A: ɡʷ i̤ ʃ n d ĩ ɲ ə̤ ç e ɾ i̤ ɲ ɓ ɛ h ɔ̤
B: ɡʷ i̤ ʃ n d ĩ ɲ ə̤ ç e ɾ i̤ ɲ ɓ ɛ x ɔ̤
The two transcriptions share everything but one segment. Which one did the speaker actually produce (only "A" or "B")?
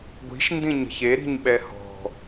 A